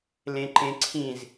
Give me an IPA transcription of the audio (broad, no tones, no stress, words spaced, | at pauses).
lẽǃẽǀʰĩz